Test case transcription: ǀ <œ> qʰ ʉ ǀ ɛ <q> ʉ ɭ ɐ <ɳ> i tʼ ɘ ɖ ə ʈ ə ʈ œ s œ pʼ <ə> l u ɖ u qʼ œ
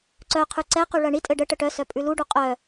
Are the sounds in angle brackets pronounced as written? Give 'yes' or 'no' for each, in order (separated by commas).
yes, yes, yes, no